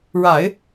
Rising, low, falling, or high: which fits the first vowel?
low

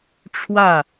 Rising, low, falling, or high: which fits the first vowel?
falling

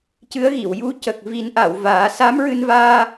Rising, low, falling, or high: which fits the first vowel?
rising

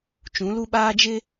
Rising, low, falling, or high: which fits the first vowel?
rising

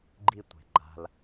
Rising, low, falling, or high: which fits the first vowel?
high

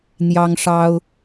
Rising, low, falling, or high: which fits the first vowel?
high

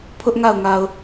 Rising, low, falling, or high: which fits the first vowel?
high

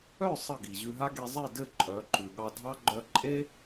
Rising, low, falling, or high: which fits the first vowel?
falling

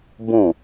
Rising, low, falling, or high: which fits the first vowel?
falling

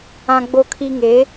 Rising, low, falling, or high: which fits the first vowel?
high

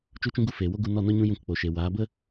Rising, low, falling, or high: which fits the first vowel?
high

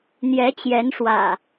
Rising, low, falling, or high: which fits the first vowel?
rising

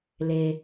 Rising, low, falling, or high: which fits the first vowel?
low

